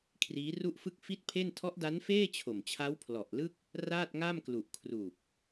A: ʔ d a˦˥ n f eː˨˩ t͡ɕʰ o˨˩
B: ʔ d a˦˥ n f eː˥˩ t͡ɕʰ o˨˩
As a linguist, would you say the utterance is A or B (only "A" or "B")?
B